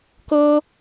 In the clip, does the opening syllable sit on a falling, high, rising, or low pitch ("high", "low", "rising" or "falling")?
high